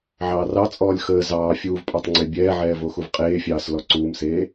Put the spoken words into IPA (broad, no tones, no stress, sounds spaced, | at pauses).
ʕ ɑː r ɑ t͡sʼ ɔː lʲ x əː z ɑː fʲ uː v pʼ ɑ tˤ ŋ͡ǀ e bʲ ɛː ʕ ɛː v o x u v qʼ eː fʲ ɑː s l ɔ ǀ uː m s eː